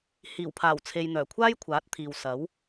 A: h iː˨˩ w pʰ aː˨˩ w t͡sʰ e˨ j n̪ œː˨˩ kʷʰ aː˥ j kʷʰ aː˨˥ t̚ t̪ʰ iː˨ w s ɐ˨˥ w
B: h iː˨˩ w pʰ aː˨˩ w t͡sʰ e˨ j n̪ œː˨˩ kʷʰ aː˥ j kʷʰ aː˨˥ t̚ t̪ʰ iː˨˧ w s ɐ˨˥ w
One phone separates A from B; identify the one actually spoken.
A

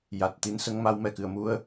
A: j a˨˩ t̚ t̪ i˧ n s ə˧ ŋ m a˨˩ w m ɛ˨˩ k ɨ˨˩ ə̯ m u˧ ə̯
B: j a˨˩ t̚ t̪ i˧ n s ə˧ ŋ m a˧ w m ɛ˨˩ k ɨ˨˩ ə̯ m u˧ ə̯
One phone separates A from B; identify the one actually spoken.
B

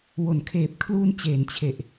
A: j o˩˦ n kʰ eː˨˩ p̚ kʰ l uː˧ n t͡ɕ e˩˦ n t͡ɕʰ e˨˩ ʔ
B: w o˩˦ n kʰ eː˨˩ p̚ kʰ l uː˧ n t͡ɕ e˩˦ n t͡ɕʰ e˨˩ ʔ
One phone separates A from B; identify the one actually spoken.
B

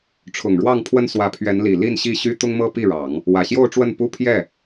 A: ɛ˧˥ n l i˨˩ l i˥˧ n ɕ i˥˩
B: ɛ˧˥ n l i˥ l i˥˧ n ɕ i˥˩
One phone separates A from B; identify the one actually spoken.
A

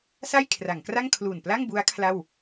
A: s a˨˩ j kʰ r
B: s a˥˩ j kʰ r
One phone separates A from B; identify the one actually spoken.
B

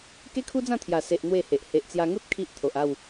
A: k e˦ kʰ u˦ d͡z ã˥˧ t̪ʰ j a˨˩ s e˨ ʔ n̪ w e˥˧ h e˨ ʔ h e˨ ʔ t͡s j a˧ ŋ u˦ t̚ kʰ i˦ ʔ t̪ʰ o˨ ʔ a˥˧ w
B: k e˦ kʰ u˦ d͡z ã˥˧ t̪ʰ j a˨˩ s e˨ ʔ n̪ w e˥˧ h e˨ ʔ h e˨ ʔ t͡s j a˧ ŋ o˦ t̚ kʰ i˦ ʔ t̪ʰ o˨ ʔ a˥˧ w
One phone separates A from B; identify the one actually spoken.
A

